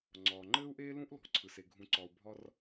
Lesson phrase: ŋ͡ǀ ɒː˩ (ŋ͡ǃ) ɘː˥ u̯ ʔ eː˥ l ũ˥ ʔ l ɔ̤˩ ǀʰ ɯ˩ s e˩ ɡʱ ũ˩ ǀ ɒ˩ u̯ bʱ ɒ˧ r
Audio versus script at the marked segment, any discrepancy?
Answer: no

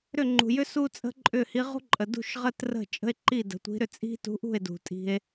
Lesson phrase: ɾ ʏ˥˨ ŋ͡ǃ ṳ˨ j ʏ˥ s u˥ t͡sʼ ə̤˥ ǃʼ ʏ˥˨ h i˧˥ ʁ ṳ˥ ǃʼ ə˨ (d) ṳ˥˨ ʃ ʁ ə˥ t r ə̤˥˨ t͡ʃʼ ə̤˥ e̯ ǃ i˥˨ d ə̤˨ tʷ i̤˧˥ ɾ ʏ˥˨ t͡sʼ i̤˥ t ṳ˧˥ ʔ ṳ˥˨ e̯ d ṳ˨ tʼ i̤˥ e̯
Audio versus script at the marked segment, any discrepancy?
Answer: no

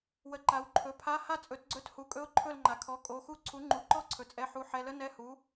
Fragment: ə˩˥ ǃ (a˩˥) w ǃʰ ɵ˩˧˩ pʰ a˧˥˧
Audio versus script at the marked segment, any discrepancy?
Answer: no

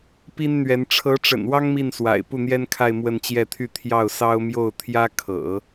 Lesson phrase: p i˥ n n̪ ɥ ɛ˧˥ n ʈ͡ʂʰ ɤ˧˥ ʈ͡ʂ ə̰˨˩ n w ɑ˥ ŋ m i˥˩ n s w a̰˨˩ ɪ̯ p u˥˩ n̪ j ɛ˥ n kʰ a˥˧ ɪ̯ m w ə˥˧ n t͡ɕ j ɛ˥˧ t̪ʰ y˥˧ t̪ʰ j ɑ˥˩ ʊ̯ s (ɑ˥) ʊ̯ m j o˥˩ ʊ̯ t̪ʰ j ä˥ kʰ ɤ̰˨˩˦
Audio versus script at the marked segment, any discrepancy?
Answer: no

